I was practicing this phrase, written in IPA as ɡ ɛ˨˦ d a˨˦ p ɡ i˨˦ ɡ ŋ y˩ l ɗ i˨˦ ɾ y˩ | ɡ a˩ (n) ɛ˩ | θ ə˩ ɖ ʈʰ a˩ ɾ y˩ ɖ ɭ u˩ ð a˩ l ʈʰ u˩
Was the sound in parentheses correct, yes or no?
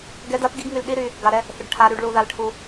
no